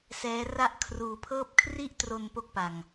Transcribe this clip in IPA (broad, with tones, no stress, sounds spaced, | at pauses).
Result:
s ɛː˦˥ r a˥˩ ʔ kʰ r uː˧ pʰ ɤː˦˥ p̚ kʰ r i˥˩ ʔ t r o˧ n p o˥˩ k̚ p a˧ ŋ